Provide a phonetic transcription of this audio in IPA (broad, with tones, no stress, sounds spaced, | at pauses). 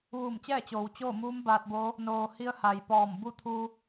ʋ uː˧˩ m t͡ɕ ɛː˥˨ t͡ɕ oː˩˧ w t͡ɕ oː˥˨ m uː˧˥ m b aː˧ t̚ b oː˧˥ | n oː˩ h i˧ ə̯ h a˩ j p ɔː˧˩ m b u˥˨ t̪ʰ uː˧